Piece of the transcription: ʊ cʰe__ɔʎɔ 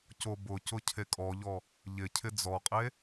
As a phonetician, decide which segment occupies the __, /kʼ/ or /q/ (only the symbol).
kʼ